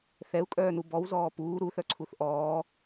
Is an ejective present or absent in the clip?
present